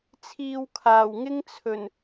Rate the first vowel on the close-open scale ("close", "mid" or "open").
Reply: close